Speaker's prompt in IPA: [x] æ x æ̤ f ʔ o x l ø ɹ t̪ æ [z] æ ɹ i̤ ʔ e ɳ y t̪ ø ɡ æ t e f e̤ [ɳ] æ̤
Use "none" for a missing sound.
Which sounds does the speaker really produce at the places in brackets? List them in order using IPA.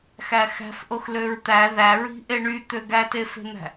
x, ð, n̪

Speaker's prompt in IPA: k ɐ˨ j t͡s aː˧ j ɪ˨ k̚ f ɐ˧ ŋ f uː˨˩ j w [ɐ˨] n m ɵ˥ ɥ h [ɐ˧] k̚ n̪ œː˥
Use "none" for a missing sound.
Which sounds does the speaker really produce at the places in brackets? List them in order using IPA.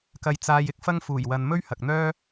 ɐ˨, ɐ˨

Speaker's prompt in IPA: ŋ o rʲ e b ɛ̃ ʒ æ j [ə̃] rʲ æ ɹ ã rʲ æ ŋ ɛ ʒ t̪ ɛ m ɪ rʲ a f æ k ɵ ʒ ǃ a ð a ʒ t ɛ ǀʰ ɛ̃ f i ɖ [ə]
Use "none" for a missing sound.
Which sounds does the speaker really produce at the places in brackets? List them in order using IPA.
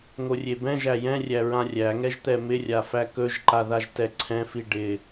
ɛ̃, ɪ

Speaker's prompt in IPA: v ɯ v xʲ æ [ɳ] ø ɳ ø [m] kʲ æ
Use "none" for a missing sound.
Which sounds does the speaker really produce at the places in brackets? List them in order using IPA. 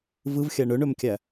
ɳ, m

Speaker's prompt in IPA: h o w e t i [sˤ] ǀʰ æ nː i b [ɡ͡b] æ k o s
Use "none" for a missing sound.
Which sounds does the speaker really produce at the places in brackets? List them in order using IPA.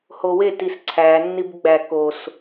s, ɡ͡b

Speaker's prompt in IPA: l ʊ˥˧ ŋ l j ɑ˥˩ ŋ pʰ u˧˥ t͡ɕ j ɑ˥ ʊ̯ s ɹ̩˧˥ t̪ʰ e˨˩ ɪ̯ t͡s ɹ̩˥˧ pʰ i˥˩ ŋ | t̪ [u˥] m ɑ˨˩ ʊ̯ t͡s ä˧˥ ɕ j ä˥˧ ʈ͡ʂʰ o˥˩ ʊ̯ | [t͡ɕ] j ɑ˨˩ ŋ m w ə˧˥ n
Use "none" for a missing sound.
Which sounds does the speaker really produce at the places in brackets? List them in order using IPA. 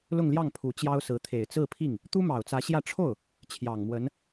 u˥, t͡ɕʰ

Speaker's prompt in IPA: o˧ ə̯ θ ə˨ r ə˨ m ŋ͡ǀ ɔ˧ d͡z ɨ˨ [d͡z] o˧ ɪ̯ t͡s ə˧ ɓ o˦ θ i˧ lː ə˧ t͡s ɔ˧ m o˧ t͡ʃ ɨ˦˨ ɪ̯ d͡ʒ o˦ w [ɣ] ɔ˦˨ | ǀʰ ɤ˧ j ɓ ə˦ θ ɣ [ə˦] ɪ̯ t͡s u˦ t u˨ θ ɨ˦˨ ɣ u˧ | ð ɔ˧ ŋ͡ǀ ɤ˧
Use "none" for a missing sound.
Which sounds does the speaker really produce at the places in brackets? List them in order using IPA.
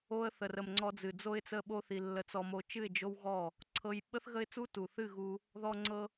d͡z, ɣ, ə˦

